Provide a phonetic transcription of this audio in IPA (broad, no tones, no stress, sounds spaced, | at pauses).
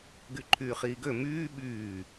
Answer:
ɡ y ǃʰ yː χ iː ɡ ø m yː ɓ yː